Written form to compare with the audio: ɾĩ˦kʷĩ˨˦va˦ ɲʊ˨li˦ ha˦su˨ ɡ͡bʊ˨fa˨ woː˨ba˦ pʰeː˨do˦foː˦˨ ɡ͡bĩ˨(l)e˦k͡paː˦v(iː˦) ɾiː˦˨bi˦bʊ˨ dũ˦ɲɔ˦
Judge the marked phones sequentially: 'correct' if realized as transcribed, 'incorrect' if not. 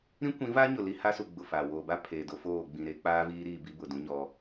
incorrect: ɾ, correct

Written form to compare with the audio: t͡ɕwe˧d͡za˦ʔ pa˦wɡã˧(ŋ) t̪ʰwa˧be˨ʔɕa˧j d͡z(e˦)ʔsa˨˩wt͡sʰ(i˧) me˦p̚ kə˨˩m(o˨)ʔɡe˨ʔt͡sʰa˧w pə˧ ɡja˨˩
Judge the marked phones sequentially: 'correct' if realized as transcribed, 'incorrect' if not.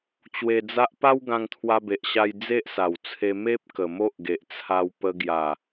correct, correct, incorrect: e˧, incorrect: o˦

